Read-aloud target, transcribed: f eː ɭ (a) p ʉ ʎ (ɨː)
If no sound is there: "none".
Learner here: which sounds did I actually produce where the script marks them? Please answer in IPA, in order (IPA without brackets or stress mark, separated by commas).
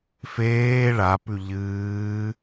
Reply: a, ɨː